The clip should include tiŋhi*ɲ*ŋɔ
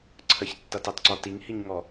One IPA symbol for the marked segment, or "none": ɲ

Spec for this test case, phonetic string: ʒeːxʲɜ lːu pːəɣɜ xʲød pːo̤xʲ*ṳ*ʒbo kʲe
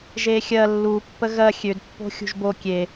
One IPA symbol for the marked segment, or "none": ṳ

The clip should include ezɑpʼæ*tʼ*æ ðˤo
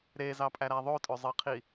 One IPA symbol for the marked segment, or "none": ɾ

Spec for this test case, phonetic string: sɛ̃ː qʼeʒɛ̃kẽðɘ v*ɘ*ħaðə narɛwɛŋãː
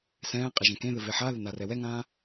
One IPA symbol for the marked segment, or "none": e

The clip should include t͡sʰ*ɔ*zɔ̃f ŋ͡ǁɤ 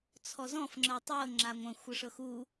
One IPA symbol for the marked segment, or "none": ɔ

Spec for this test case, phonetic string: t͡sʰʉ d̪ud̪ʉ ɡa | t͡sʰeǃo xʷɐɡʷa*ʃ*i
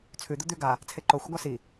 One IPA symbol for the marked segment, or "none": s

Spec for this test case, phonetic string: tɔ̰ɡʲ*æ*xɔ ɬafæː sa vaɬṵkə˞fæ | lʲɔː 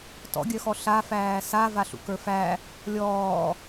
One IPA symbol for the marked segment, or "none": œ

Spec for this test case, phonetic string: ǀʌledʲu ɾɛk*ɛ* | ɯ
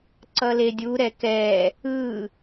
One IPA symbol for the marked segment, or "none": ɛ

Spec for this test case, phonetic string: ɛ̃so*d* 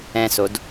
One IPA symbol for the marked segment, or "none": d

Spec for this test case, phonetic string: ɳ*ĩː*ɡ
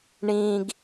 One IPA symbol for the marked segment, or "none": ĩː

